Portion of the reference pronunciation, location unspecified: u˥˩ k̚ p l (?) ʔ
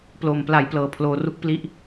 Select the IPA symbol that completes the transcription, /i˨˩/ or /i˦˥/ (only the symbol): i˦˥